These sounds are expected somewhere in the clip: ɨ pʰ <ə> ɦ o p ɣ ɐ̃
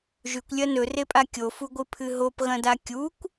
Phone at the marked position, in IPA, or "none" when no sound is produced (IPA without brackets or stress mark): ɨ